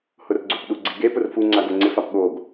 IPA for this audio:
h ʊ r ɡ͡ǀ u p ɗ u ɡ͡ǀ i ɡ e p ʊ r f u ŋ͡ǀ a ɡ o ŋ͡ǀ ɪ f a p ɠ o ɡ

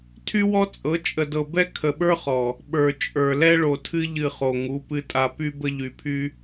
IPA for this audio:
tʰ y˦ w ɔ˦ t͡sʼ ɤ˨˦ t͡ʃʼ ə˨ d ɤ˨ b ɛ˦ kʰ ə˨ ɓ ə˞˦ χ ɔ˨ | ɓ ə˞˨ t͡ʃʼ ə˞˨ l ɛ˦ ɭ o˨ tʰ ɨ˦ ʎ ɨ˦˨ χ o˨ ŋ u˨˦ p ɨ˨ tʼ a˨ p y˦ b ə˦ ʎ y˨ pʰ y˦

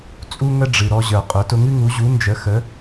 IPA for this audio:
t͡sʼ u˥ ŋ ə˥ ɖ͡ʐ ɨ˩ ɾ ɔ˧ ʑ ə˞˩ qʼ ʊ˩˥ t ʊ˧ ŋ ɨ˥ ŋ u˩˥ ʑ u˩˥ n d͡ʒ ə˩˥ x ə˩˥

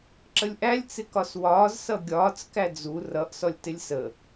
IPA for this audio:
ǁ ə lʲ ʔ æ lʲ t͡s ɪ k ɒ s w ɒː z s ʌ ɡʲ ɒː t͡s k æ d͡z u r ʌ ʔ s ɔ lʲ t ɪ lʲ s ə

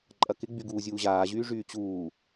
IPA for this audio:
ǃʼ ɐ k ɪ ɡ͡b y ɡ uː zʲ uː ʑ aː ʑ yː ʐ yː t͡ɕ uː

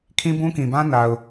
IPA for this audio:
kʰ ĩ˦ b ũ˦ k ĩ˨ b ã˦ n a˨ ʊ̯

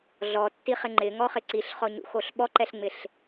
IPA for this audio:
ɮ ɔ tː i χ ɪ ŋ͡ǃ ɪ ŋ ɔ χ ɪ ǀ i ɬ χ ɔ ɲ ṵ x o ɬ ɓ ɔ ǃ ɛ ɬ ŋ͡m ɪ ɬ

